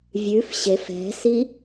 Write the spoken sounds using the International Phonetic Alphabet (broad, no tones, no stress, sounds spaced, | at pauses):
vʲ ʉ f ɕ e f ɛ̤ s i